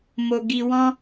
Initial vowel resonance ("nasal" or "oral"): oral